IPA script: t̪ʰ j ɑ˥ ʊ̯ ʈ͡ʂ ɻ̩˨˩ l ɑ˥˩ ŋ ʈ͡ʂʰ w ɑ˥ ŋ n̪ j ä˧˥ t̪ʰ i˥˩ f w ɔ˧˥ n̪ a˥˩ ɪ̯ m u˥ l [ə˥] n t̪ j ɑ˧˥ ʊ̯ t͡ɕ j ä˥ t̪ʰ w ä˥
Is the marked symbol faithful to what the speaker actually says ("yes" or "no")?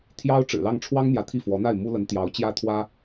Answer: no